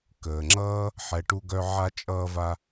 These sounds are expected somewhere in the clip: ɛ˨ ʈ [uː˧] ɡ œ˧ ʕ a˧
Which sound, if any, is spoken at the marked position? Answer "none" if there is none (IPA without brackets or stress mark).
u˧